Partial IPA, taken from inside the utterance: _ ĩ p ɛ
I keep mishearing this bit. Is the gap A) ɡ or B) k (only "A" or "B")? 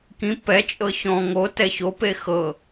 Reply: B